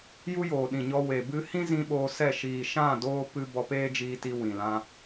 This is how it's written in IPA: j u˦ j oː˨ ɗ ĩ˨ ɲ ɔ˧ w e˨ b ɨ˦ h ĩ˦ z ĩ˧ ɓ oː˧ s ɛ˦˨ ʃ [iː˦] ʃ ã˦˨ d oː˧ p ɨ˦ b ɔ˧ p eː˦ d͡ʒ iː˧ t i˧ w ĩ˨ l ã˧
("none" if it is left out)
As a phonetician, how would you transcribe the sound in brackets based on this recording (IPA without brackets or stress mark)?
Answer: iː˨